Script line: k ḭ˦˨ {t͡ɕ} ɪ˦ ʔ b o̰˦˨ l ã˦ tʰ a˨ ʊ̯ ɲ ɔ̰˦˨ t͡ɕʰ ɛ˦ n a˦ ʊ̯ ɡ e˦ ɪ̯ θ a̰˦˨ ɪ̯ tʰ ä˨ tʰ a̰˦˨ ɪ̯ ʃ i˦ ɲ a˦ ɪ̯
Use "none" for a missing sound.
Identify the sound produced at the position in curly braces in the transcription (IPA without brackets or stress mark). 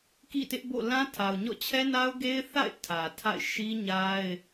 t